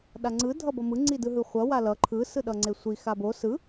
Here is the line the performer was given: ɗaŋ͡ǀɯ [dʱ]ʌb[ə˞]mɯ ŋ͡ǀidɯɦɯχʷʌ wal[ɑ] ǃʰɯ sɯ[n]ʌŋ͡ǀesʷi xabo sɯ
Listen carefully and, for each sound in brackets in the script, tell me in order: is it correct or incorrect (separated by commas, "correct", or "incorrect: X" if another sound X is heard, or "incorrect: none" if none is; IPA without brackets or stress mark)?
correct, incorrect: ʌ, incorrect: ʌ, incorrect: ɗ